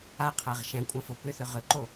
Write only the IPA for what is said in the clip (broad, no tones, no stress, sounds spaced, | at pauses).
a qʰ æ ʁ ʃ æ̃ kʷʼ ɐ̃ f o p ʏ θ ʏ ʁ ʏ ǃ o